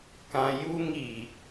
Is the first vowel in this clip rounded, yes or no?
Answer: no